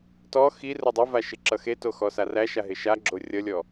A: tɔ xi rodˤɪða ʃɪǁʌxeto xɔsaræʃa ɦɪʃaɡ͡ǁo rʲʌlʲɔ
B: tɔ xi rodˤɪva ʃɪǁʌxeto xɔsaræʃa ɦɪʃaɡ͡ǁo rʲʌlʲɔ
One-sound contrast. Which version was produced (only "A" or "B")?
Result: B